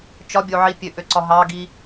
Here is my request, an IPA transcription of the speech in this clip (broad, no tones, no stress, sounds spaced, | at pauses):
t͡ʃ ɒ bʲ o ʕ i pʲ ø ʔ ø ǀ ɒ ɦ ɑ ɡ i